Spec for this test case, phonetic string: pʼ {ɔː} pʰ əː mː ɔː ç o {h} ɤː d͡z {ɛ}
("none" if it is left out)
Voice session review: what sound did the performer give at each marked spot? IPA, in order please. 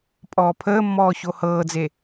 ɔː, h, e

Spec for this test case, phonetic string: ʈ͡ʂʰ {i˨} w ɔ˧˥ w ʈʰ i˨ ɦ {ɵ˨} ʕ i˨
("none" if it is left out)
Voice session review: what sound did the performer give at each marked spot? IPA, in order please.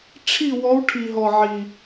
i˥˧, ɔ˨

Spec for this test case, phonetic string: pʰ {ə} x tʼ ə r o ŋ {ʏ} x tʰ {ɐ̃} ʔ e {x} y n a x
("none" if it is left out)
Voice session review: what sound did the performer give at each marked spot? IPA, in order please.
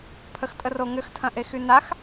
ə, ʏ, ɐ̃, x

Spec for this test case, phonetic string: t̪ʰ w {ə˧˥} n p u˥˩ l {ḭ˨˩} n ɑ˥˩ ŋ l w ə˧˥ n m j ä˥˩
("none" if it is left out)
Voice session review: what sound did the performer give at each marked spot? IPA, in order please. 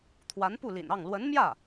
a˧˥, ḭ˨˩

